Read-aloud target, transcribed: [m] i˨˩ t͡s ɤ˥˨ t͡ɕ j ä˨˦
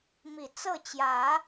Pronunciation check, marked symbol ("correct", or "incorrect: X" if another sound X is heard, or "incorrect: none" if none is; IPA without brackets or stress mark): correct